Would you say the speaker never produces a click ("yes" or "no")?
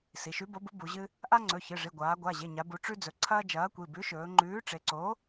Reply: no